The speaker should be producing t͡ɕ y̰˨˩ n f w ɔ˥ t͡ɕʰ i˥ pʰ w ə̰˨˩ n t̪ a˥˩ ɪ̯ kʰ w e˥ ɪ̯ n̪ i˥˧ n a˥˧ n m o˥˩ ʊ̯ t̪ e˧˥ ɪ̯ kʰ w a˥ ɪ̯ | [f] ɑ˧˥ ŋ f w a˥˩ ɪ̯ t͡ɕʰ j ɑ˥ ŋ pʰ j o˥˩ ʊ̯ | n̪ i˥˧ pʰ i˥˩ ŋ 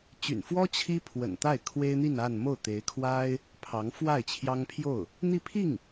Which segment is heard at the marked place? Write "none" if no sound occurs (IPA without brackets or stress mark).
pʰ